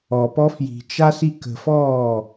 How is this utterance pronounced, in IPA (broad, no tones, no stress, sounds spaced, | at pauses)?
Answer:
ɔ p ɔ f j i̤ t͡ʃ a s i k ə̤ f ɔː